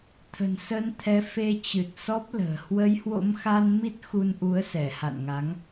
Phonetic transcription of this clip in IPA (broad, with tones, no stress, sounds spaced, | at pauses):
t̪ʰ ə̤˨˩ n s ə˧ n t̪ʰ ɛ˨˦ f e˧ t͡ɕ ɨ˨˩ t̚ s ɔ˦˥ p̚ l ə̤ː˨˩ h w ə˨˦ j h w o̰˧˥ m x a˧ n m i˦˥ t̚ x u˧ n ʔ u˨˦ ə̯ s ɛ˧˩ h a̰˧˨ n ŋ a˨˦ ŋ